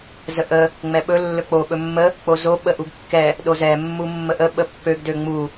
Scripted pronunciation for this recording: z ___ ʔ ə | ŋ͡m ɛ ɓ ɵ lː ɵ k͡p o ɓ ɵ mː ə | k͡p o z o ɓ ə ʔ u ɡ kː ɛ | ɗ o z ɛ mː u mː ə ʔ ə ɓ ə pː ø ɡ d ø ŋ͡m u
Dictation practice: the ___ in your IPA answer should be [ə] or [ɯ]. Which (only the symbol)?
ə